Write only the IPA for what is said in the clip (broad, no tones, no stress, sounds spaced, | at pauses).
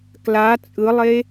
k l a t͡sʼ ɯ lˠ e